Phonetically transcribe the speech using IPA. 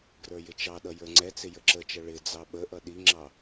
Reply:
ɡrə˞jɪt͡ʃɑɗʌ jə˞ŋ͡ǀɛt͡sɪ jəǁət͡ʃʌ ɭɪd͡zɑ ɓəʔʌ ɗiŋ͡ǁɑ

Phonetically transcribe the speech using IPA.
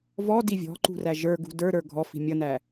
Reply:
vɔ divʲɔ̤ǃṳræ ʒə˞ɡṳ də˞ɾə˞ ɡʱɔfi̤ mʲʌnæ

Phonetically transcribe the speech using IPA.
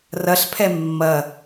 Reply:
rɐɬpʰɛ mːɐ

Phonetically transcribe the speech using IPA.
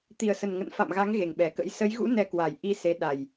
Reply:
t̪i˨˩ə̯sə˨˩nŋə̰˧˨n fa̰˧˨mɣa˨˦ŋ ɣe˨˩ŋɓɛ˨˩kə̰˧˥j sə˨˦j ɣṵ˧˥ nɛ˧ kwa˨˩jʔi˧se˨˦ ɗa˨˩j

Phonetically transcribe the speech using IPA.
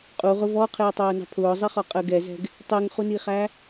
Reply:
qʼuʁʊ vɔqʰɪːtˤʊːnɑ̤ pʰʊːzˤiχɔ qʼəɡ ɛzɛ̤ɡ | tˤɪːŋχuniχæ

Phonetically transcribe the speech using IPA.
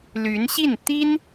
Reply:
ly˧˥nɕi˥˩n t̪i˥n

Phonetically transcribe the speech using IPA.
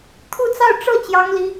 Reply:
t̪ʰu˥˧t͡sɑ˥˧ʊ̯ ʈ͡ʂɤ˥˩ t͡ɕjɑ˥ŋli˥

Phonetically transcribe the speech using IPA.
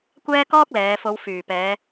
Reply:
kʷɛː˥kɔː˥k̚lɛː˨˧ fo˨˧wfyː˨˩pɛː˨˧

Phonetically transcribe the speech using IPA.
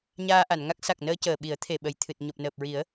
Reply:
ɲaː˧ʔa˨˩˨nŋa˦˥k̚ sa˨˩k̚nəː˧cəː˨˩ɓi˨˩˦ə̯ t̪ʰe˨˩ɓə˨˩jt̪ʰɨ˨˩t̚ ɲo˨˩p̚nəː˨˩p̚ɹi˨˩˦ə̯

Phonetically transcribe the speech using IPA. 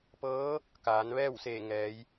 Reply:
pɤː˧˥ | kaː˩˧n ʋɛː˥˨wseː˧˩ ŋɛː˩˧j

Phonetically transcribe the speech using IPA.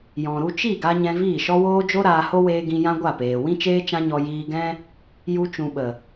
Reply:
jɔ̃˨ɾu˧ t͡ʃi˦˨ɡa˧ ɲɛ̃˧viː˦˨ʃɔ˦woː˦ d͡ʒo˦ ɾaː˧ho˦ weː˦ ɡĩ˧jã˦ɡʷa˦˨peː˨ wĩ˦t͡ʃeː˦t͡ʃã˦ɲɔ˧ jiː˧ɡɛ̃˦ | ju˧t͡ʃũ˨ ɓə˨

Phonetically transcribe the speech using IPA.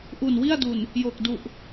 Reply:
ʔu˨˩nwi˥˩a̯du˨˩n | jo˨˩k̚du˨˩ʔ

